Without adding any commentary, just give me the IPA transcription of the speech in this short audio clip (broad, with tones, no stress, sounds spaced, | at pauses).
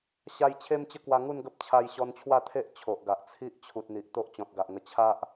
ɕ a˧ j t͡ɕʰ e˦ m t͡ɕ ə˦ k w a˧ ŋ u˥˧ n ɡ ə˦ p̚ t͡ɕʰ a˧ j ɕ ɔ˧ n t͡ɕʰ w a˥˧ t̪ʰ e˦ ʔ t͡ɕʰ o˨ ʔ ɡ a˨ ʔ t͡sʰ i˦ ʔ t͡ɕʰ u˨ t̚ n̪ i˨ ʔ t̪ o˦ ʔ t͡ɕ ɔ̃˨ t̚ ɡ a˨ ʔ ŋ ə˧ t͡ɕʰ a˦ ʔ